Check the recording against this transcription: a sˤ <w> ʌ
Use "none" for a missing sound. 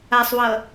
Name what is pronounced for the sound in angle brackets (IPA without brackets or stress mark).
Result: w